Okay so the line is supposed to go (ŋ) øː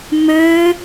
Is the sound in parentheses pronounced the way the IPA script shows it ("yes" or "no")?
no